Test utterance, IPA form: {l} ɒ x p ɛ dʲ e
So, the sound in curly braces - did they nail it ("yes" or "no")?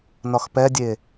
no